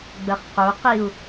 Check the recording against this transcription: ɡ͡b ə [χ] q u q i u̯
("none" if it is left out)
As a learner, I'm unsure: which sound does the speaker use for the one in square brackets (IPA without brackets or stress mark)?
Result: χ